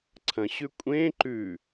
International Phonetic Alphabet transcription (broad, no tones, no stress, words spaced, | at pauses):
ǀʰɐ̃ɕʉ kʷʼẽ ǃʉ